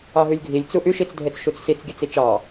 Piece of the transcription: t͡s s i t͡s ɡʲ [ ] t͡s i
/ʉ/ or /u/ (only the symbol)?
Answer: ʉ